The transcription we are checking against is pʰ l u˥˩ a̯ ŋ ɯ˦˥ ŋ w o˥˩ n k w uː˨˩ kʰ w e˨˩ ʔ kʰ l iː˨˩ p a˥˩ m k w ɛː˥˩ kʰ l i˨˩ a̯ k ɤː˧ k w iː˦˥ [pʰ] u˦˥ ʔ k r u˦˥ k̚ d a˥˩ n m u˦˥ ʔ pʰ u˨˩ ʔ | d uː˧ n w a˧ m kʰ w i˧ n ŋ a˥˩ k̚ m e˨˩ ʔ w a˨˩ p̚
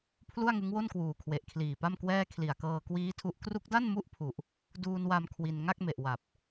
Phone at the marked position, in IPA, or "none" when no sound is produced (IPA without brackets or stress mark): tʰ